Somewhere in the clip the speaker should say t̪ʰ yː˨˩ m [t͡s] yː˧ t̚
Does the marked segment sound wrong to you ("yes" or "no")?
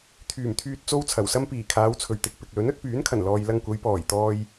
yes